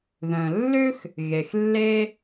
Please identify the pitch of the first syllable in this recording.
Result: low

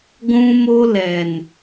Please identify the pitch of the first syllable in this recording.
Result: high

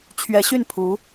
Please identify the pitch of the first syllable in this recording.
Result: rising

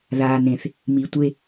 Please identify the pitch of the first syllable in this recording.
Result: low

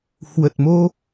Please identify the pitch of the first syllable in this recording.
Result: low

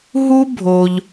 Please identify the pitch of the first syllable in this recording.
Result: high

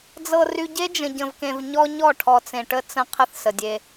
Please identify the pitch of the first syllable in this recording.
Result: low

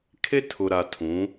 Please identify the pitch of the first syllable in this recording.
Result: high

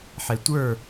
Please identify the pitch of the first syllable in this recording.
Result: low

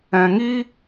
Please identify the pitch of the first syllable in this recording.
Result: low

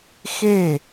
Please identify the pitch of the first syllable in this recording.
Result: falling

